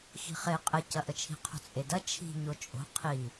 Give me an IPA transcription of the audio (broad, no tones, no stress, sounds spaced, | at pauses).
x i̤ χ e qʼ ə c ɐ ʔ ə t͡ʃʰ i̤ qʰ o̤ t͡sʼ e d ɐ t͡ʃʰ i̤ ɲ o t͡ʃʼ o̤ qʰ i